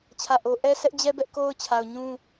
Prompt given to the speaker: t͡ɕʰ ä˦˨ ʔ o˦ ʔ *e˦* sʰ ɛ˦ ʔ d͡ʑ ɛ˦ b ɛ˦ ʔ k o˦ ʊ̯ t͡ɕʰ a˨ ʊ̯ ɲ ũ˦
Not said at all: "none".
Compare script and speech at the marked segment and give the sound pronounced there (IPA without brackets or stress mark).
ɛ˦